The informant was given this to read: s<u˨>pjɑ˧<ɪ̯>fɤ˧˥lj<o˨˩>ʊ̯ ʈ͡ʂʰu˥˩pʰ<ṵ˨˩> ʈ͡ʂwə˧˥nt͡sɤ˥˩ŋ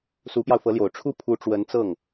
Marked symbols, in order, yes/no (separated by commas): no, no, yes, no